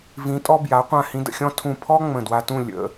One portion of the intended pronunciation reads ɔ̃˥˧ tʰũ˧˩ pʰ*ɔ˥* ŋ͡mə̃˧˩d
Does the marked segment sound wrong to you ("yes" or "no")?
no